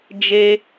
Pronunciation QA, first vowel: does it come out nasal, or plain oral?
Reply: oral